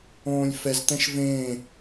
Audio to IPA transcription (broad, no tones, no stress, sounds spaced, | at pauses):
õː lʲ f ɛ z t̪ ɛ̃ ʃ v ẽ